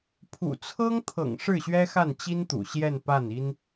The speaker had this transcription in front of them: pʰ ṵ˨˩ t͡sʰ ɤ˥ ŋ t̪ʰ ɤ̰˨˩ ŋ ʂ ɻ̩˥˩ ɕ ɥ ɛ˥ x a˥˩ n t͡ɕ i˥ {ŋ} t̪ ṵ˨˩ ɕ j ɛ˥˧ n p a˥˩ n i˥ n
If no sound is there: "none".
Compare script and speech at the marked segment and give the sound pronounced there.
n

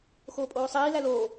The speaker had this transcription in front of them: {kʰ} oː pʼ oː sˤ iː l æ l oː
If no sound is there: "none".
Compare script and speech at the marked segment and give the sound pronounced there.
x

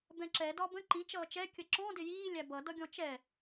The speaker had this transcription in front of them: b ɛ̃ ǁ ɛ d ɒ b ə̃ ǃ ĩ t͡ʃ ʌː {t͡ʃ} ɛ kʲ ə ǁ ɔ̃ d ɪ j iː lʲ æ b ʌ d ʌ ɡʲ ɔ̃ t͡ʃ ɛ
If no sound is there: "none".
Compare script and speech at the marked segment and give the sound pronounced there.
t͡ʃ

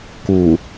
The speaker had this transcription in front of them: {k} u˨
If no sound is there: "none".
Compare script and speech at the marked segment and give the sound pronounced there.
k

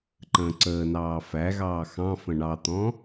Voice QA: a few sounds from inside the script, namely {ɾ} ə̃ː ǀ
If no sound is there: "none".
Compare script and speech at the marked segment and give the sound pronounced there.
ǃ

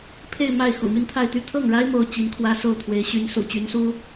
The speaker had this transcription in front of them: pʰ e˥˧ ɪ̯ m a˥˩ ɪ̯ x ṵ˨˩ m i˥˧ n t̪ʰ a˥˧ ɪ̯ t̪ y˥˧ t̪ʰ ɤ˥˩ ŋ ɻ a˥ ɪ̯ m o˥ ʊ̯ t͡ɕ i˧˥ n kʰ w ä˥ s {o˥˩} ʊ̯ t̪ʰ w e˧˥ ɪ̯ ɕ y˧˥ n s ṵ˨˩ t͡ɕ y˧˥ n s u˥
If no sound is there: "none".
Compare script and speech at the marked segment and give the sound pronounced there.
o˥˩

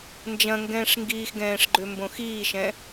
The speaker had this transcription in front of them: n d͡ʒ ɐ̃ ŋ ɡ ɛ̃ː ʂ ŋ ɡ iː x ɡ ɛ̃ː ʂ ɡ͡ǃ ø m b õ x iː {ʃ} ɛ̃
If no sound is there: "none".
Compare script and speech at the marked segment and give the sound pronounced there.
ʃ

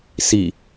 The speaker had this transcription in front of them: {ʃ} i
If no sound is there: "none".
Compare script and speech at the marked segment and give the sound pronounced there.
s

